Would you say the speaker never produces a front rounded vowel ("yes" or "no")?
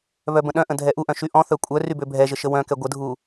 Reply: no